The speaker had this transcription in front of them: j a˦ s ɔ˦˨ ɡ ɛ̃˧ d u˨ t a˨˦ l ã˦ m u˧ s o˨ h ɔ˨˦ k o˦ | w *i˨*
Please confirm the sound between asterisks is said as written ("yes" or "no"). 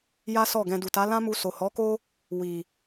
yes